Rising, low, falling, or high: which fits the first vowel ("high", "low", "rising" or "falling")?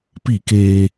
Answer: falling